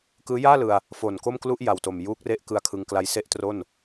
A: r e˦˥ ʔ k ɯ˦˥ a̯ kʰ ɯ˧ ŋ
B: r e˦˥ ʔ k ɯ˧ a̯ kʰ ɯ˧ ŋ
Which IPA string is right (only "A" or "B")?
A